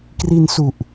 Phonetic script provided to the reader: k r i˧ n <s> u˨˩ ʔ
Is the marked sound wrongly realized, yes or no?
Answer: no